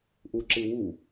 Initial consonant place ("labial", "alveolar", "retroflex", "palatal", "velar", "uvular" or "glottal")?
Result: glottal